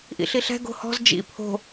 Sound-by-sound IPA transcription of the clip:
ʔ ḭ ɬ i ɬ ɛ̤ ɡ o̤ h ɔ̤ z d͡ʒ ḭ pʰ o̤

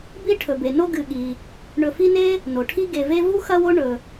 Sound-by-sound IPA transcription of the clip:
b i˥ ʈʰ ɵ˩ b e˩ n o˥ ɡ ɨ˨ ɠ i˩ | ɳ ɵ˨ f i˦ n e˥ | n o˩ ʈʰ i˦ ɡ e˨ v e˦ v u˥ x ɐ˦ w o˦ ɳ ɵ˨

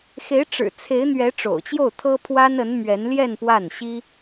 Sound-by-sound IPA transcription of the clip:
x e˧˥ ɪ̯ ʈ͡ʂ ɻ̩˨˩ t͡sʰ e˧˥ ɪ̯ n̪ ɥ ɛ˧˥ ʈ͡ʂ o̰˨˩ ʊ̯ t͡ɕ j o˥˩ ʊ̯ t̪ʰ ɤ˥ pʰ w a˥ n ə˧˥ n m ɥ ɛ˧˥ n l j ɛ˥˧ n p w a˥˩ n ɕ i˥

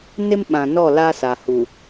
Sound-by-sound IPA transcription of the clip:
n ɪ˦ m ɓ ã˨ n ɔ˦˨ l a˦ s a˨ h u˨

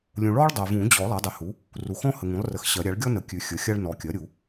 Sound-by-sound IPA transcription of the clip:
lʲ ũ˨ ɭ ɔ˥ ɭ dˤ ɜ˨ v ũ˨˩˦ d͡ʑ ɔ˨˩˦ lˠ a˩˥ dˤ ə˩˥ h u˩˥ | r u˨ x ɔ̃˥ h ə˨ ŋ ũ˩˥ lˠ r ə˨ x ɕ ɜ˨˩˦ ɾʲ a˩˥ ɭ ɡʲ ɔ˥ n ə˨ kʲ ʉ˨ xʲ ə˩˥ xʲ a˥ ɭ n ɔ˨ kʲ ɜ˩˥ ɾʲ u˨˩˦

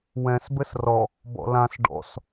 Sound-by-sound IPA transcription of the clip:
w ɛ̃ s b ɘ s r ɔ | b ɔ̰ l ã s ɖ ɔ̰ s

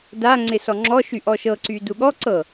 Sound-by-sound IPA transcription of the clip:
d a ŋ͡ǀ ɪ s ɔ ŋ͡ǁ ɔ ʃ y ʔ ɔ ʃ ɤ ǀ y d u ɠ ɔ ǀ ɤ

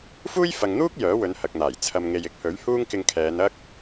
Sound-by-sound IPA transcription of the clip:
f uː˥ j f ɐ˨ ŋ n̪ uː˥ k̚ j œː˨˥ w ɵ˨˧ n h ɐ˨ k̚ n̪ aː˨˩ j t͡sʰ ɐ˨ m ŋ e˨ j ɪ˨˥ k̚ h ɵ˨˥ ɥ h uː˥ ŋ k ɪ˧ ŋ kʰ ɛː˨˧ n ɐ˥ k̚

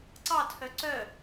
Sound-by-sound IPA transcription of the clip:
ǀ ɑ tʰ œ ǀ œ

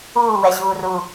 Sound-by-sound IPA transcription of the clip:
uː w ɛ ʑ uː r u

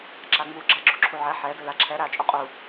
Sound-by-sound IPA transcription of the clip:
ǁ a ŋ͡m u ɡ͡ǁ a ɡ͡ǁ u ǁʰ u ʕ ɛ ħ ɛ d ɵ l a ǁʰ ɛ ɾ a t͡ʃʼ u qʼ u

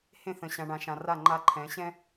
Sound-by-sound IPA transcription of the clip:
h ẽ˦ θ ə̃˨ ɕ ã˨ ɳ ã˨ ʃ ã˨ r a˦˨ ŋ͡ǃ a˦ ǃʰ ɛ̃˨˦ ɕ ɛ̃˦

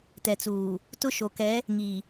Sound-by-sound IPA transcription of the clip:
t ɛ˨ t͡s uː˨ | t ʊ˦ ʃ o˨ k ɛ˨˦ | ŋ i˨

